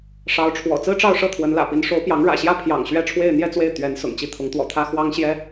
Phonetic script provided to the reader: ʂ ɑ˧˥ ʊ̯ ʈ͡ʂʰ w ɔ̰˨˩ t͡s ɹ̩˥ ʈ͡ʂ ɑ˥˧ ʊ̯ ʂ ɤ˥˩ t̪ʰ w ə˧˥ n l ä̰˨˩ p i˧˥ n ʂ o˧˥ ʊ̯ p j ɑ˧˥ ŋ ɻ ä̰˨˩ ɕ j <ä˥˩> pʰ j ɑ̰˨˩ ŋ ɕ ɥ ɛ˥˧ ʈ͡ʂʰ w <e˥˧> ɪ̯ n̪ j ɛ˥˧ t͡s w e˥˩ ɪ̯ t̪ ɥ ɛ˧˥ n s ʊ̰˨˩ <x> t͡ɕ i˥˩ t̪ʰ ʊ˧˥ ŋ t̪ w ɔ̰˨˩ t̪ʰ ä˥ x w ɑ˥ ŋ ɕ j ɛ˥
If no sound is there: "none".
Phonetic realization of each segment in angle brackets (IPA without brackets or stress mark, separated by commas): ä˥˩, e˥˧, ŋ